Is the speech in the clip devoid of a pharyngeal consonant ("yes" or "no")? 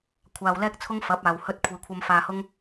yes